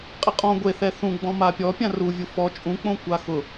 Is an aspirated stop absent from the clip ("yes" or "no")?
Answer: yes